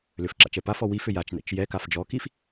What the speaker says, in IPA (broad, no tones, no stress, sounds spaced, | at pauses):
l ʏ f ǁ a̰ t͡ʃ ɛ p a f ɔ w i f ʏ j a t͡ʃ n ɛ̰ t͡ʃ j ɛ k a f d͡ʒ ɔ k i f